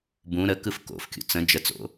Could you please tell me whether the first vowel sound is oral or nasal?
nasal